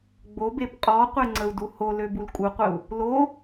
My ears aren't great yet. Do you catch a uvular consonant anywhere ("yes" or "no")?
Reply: yes